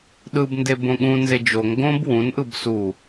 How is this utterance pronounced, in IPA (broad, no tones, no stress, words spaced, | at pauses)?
ɗɯbnde bõɠũnze d͡ʒoŋ ɡõb wũnʔɯb su